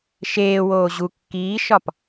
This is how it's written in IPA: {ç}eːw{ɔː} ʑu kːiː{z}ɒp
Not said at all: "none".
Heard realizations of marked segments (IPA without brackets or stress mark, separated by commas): ʃ, oː, ʃ